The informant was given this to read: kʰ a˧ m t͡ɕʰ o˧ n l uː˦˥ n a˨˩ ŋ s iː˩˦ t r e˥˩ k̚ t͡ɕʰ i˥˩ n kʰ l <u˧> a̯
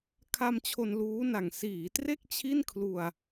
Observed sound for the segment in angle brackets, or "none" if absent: u˧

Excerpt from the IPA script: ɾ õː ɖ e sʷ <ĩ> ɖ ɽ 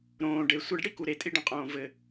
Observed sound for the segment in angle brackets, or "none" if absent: i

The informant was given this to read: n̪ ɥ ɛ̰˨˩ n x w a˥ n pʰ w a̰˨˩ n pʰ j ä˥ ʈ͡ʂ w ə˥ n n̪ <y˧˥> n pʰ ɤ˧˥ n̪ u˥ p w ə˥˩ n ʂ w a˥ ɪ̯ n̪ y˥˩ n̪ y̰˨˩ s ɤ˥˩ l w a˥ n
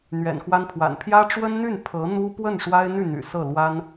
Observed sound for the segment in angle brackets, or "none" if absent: y˥˩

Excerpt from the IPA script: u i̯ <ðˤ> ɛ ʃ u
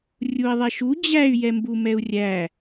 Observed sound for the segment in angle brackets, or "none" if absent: ðˤ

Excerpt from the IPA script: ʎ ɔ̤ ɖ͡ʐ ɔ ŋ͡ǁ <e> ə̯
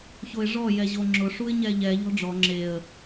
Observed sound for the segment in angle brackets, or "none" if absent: e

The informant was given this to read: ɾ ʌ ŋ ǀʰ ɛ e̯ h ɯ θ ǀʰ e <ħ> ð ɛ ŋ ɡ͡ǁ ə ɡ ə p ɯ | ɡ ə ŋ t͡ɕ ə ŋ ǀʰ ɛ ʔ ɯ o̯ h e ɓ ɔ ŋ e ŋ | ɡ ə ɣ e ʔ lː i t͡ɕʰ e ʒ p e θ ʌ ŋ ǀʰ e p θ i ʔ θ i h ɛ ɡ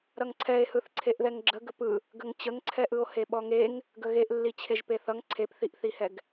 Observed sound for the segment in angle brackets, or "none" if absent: ʔ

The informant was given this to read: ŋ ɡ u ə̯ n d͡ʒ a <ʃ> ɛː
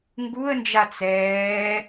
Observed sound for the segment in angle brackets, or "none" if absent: t͡s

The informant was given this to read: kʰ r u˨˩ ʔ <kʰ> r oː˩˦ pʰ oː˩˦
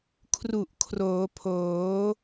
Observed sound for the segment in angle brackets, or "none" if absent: kʰ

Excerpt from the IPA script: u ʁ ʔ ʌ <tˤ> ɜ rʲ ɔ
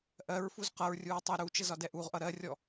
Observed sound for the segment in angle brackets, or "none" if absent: ɾ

